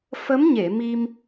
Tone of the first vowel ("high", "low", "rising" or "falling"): rising